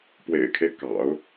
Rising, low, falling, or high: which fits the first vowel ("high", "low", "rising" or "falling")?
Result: low